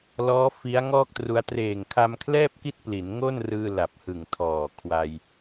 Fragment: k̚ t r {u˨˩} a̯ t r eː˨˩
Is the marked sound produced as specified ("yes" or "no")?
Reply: no